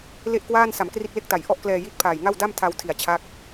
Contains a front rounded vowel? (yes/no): no